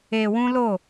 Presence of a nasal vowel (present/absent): present